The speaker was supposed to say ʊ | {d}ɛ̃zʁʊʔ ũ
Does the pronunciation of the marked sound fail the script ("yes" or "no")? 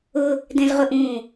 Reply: no